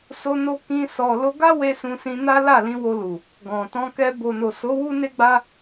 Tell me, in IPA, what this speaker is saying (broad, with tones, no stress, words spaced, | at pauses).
so˧no˧ kĩ˧ sɔ˨lo˧ɡa˦we˧ sũ˧sĩ˧na˦ la˦˨lĩ˨˦wo˧lu˨ | ɡɔ̃˨ tɔ̃˧kɛ˧ bo˨no˨so˨˦ wu˦ne˦ɡ͡ba˦